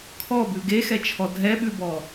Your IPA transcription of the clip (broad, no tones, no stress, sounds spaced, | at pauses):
kʰ ɔ b ʉ ɡ e x ɛ t͡ʃʰ ɔ dʱ ɛ ɓ ʉ b ɔ